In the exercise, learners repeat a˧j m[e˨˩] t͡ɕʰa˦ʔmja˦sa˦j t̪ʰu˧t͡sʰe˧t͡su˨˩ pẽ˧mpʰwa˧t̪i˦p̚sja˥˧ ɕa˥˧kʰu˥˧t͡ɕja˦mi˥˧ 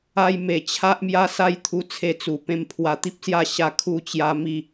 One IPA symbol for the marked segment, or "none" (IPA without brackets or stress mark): e˨˩